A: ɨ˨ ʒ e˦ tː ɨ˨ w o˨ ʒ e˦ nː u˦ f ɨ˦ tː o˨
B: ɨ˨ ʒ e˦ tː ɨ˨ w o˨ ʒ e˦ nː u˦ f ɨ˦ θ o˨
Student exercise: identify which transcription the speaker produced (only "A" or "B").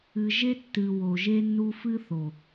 B